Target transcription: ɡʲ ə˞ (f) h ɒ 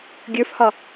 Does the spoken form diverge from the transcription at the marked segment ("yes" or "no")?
no